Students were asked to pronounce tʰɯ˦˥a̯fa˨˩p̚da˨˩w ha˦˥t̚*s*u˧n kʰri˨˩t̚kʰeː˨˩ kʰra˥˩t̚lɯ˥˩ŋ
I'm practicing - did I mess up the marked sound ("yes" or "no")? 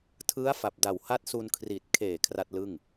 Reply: no